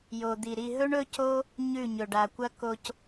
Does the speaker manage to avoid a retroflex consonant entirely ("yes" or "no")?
no